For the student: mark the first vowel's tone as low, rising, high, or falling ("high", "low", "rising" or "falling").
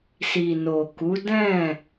low